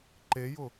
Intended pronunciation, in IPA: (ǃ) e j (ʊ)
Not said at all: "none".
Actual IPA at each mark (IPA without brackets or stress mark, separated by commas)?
ǃ, ʊ